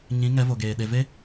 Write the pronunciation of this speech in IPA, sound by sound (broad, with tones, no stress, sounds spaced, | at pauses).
ɲ ĩ˨˦ ŋ ɛ˨˦ v o˨ ɡ eː˨ ɗ e˨ v e˦